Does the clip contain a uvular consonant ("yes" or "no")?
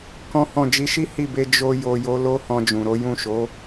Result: no